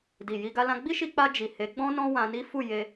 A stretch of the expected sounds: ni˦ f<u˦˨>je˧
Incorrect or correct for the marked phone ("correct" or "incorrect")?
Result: correct